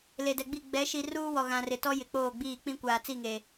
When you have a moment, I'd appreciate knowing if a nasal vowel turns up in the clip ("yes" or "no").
yes